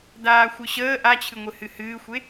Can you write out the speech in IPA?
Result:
d aː xʷ ɨ ɕ əː ʔ a t͡ɕʰ ɨ ŋʷ ɨ h ɨ h ɨː xʷ e

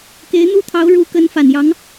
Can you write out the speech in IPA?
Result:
k e˧˥ ɪ̯ n̪ u˥ t̪ʰ ɑ˧˥ ʊ̯ ɻ u˧˥ k ə˧˥ n f a˨˩ n j ɑ˧˥ ŋ

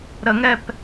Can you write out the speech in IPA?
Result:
ɾ ə ŋ ɛ p

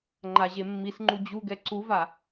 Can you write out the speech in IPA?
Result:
ŋ͡ǃ a ʑ e mː i s ŋ͡ǃ u d͡ʑ u ɡ ɛ ǀ u v a

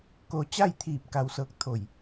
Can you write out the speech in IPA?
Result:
k o˧ t͡ɕ a˥˨ j t̪ʰ iː˧˩ p̚ k a˧ w s ɤː˧˥ k̚ t̪ʰ o˧˩ j

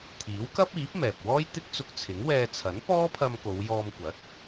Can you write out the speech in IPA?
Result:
t̪ʰ iː˨˥ w k ɐ˥ p̚ iː˨˥ p̚ m ɛː˨ p̚ w ɔː˥ j t̪ ɪ˥ k̚ t͡s ʊ˧ k̚ t͡sʰ ɪ˨˥ ŋ w ɛː˧ t͡sʰ ɐ˨˥ n p ɔː˥ pʰ ɐ˧ m k o˨˧ w j ɔː˧ m kʷ ɐ˨˥ t̚

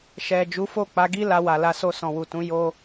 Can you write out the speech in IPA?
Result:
ʃ ɛ˨ d͡ʒ u˨˦ f o˦˨ k͡p a˨˦ ɡ i˦ l a˧ w a˨ l a˧ s o˧ s ɔ̃˨ w u˨ t ũ˨˦ j o˦

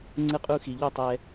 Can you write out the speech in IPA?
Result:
ŋ͡ǀ ɯ˧ qʼ u˧ x i˨ ʎ o˦˨ tˤ ɛ˧

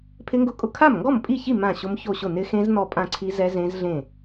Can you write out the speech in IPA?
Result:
pʰ ɪ˦˥ ŋ ɡ ʊ˦˥ kʼ ʊ˥˩ kʰ a˥˩ m ŋ ɡ ɔ˥˩ m pʼ i˥˩ ç i˥˩ m ã˥˩ ɕ ʊ˦˥ m ç o˥˩ ɕ ʊ˥˩ n ɪ˦˥ x ẽ˦˥ z n ɔ˥˩ pʼ ã˥˩ ǀʰ i˦˥ z ɛ˦˥ z ẽ˦˥ z ɮ ẽ˥˩

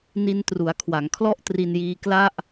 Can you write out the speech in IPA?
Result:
n i˧ n t r u˩˦ a̯ kʰ w a˩˦ ŋ kʰ l ɔ˥˩ ʔ t r i˧ n j iː˧ k l a˥˩ ʔ

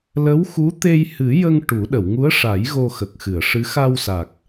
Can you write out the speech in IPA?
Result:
l ə˧˥ w x u˧˥ t̪ e˧ j h ɨ˨˩˦ j ə˧ ŋ ʈ u˨˩˦ ɗ ə˨˩˨ w ŋ u˧˥ ə̯ ʂ a˨˩˦ j ɣ o˧ x ə˨˩ k̚ x ɨ˨˩˨ ə̯ ʂ ɨ˧˥ x a˧ w s a˨˩ k̚

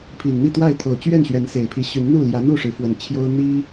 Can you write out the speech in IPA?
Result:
pʰ i˨˩ n n̪ i˥˨ t̪ w a˥˨ ɪ̯ t̪ʰ o˨˩ ʊ̯ t͡ɕ ɥ ɛ˥˨ n ɕ ɥ ɛ˨˦ n s e˨˩ ɪ̯ pʰ i˨˦ ɕ y˨˦ n n̪ u˥˨ l j ä˨˦ n̪ u˥˨ ʂ ɻ̩˨˦ f w ə˨˩ n t͡ɕʰ j o˦ ʊ̯ n̪ i˦

